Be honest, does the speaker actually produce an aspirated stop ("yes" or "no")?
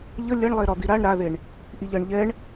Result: no